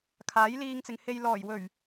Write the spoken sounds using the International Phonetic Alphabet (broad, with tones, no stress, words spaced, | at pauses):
kʰaː˨˥jliː˧ŋt͡sɪ˨ŋhe˧j lɔː˨˩jwɵ˨˩ɥ